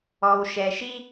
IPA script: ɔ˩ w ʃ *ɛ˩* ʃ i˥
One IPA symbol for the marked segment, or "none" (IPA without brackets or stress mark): ɛ˩